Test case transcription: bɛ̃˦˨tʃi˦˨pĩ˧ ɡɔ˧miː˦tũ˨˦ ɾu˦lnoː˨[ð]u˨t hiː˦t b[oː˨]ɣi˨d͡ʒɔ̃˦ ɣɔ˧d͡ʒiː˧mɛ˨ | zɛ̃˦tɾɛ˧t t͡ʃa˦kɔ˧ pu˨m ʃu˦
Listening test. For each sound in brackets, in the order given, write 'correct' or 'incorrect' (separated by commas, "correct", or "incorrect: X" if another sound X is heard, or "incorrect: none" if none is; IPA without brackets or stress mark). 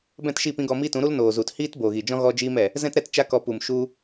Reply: incorrect: z, correct